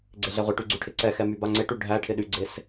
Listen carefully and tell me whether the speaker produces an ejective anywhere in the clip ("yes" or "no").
no